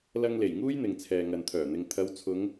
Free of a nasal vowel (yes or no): yes